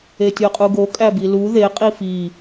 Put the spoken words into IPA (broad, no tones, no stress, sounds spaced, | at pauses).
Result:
e tʲ o qʼ u ɡ o kʼ æ b i l u ð e qʼ i f i